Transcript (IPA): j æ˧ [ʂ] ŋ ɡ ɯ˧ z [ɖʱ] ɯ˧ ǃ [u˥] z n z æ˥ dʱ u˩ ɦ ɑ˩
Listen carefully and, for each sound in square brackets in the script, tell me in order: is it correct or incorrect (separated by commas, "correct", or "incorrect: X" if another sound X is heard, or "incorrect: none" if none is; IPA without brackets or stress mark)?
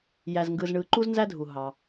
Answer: incorrect: z, incorrect: ɳ, correct